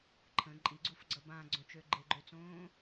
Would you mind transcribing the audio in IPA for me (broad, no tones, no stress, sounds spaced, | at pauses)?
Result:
ǃʰ ə̃ ǃʼ i ɡ͡ǀ u f ɡ͡ǀ ʌ b ã ɡ͡ǀ õ t͡ʃ ø ɡ͡ǃ e ɡ͡ǃ ø t͡s õː